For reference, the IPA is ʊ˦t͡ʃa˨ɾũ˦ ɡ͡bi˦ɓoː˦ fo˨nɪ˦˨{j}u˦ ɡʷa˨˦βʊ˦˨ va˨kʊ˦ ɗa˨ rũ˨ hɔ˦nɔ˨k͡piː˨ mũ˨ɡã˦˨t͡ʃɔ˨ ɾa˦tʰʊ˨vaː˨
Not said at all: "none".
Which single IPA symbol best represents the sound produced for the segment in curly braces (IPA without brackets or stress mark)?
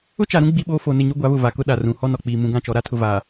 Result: ɲ